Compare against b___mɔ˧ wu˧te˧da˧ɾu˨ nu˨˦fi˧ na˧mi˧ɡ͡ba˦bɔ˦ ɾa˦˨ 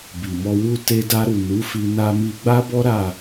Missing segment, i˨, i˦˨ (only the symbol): i˨